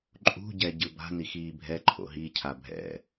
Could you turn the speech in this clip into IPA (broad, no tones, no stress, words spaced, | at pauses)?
ǃʼṳ ɟɛɟɯba̤n ixiːbʱɛ ǃʰo̰ɦicʰa bʱɛ̰